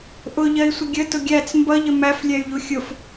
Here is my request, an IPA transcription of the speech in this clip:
ʔ ʊ ʎ ɜ i̯ sʷ ə ɡʲ ə t ʊ ɡʲ æ t͡s m b ʌ ʎ ə m æ f lʲ ɛ y̯ ʎ u xʲ ʊ f

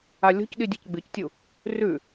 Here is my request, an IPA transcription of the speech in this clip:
a lʲ o̤ c ɗ i dʲ e c ɡ͡b ɨ c tʲ u | r ʉ

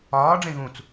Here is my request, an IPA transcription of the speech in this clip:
ɒː ɖ͡ʐ ẽ ɣ ũ t͡s

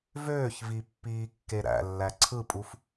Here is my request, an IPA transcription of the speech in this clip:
v øː ç v i pː iː kː e ɾ æ̰ lː æ ǀʰ ɯ pʼ u f

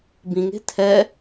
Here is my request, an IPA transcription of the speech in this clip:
b ĩ ŋ e̤ tʰ ɛ

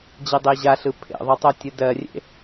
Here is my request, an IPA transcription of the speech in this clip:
d͡ʑ e dˤ e ʑ a ɬ ɯ pʰ ḛ ðˤ o tˤ o tʲ ɯ d ɜ rʲ ḛ

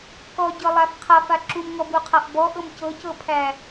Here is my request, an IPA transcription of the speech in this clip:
k ɔ ɟ ɤ lˠ a f qʰ a f a ǁ u m ŋ ɔ b u qʰ a ʔ b ɔ ʔ ɤ m c ɤ c ɤ pʰ æ

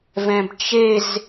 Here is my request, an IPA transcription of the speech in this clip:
v ɛ̃ b t͡ʃ e z

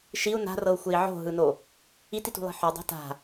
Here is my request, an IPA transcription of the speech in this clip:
ʃ i u̯ n a̤ r ɤ u̯ xʷ e i̯ ʕ o̤ ɦ ɯ n o | i t i t ṳ lˠ i̤ ħ o dˤ a̤ t a̤

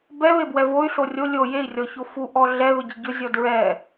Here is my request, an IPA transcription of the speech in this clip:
b ɛ β e b w ɛ v o y̯ ɬ o rʲ o lʲ o j e i̯ rʲ ɔ ç o f u ʔ ɔ ɮ ɛ ð ʊ ɟ i ɟ ʊ zʲ ɔ d ɹ ɛ

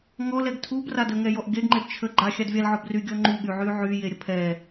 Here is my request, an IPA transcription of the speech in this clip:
ŋ ɔ l ɛ ɡ tʰ u b r a d ə ŋ ɛ j ɔ ʔ ɡ e ɡ ŋ͡ǃ e b t͡ʃʰ ə ɡ͡ǃ a xʲ a d vʲ a l ʕ ɔ b r y ɡʲ ɔ ŋ͡ǃ u ɠ y ʕ y ʕ y j e ɾʲ ə pʰ ɛ

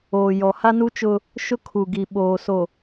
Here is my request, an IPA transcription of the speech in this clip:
oː˨ j ɔ˨ h a˦ n u˦ t͡ʃ ʊ˦ | ʃ ʊ˦ kʰ u˨ ɡ i˨ ɓ oː˨ s o˨

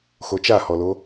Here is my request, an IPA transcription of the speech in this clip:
x o t͡ʃ a h ɔ l o

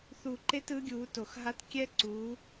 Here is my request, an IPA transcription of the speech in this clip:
θ u˧˩ ǃ e˥ t ɯ˨˥ ɡʲ uː˨˥ t o˧˩ x ɦ a˥ t kʲ ɛ˥ ǀ u˨˥

